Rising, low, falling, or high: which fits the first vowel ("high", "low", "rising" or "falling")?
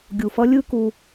low